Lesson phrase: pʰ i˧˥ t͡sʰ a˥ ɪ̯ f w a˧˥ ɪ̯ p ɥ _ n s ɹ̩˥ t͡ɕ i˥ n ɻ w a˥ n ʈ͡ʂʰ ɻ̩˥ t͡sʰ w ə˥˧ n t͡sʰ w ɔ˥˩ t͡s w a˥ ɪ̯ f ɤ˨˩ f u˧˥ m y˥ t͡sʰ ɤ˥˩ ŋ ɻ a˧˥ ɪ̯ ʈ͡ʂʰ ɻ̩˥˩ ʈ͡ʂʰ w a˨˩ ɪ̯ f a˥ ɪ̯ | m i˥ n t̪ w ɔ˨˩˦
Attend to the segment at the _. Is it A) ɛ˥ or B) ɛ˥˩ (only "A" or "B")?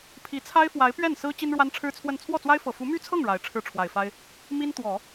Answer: B